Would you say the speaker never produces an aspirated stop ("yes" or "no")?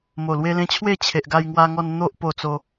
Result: no